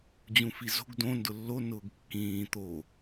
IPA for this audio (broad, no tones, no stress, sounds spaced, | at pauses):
d͡ʑ ũ f i z o̤ ɡ d õ n d ʊ lː o n ʊː ɡ kː ĩː t̪ o